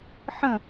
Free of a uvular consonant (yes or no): yes